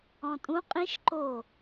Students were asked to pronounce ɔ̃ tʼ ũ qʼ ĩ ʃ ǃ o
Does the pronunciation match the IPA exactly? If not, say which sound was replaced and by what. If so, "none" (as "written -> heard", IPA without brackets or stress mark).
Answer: none